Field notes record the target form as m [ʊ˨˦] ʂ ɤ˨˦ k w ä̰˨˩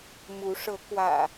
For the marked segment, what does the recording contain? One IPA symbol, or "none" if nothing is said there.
u˨˦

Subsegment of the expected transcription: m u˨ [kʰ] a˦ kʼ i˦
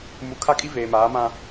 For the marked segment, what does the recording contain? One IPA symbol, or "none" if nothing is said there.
kʰ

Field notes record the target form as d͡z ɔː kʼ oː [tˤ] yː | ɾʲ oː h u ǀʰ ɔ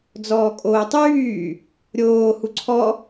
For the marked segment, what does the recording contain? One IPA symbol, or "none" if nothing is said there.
tˤ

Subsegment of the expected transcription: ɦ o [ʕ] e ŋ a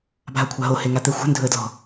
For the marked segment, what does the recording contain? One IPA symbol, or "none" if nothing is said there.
h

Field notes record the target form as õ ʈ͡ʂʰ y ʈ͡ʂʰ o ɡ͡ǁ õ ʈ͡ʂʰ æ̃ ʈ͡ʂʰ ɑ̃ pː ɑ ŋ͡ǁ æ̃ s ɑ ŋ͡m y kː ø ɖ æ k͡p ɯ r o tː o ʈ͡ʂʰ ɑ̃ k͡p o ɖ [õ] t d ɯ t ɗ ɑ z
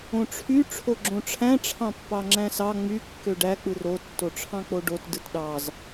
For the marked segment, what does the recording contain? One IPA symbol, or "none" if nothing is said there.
o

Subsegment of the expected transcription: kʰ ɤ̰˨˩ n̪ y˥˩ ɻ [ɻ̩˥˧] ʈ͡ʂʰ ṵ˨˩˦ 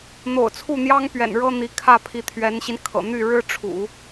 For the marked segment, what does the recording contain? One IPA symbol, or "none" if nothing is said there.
ɻ̩˥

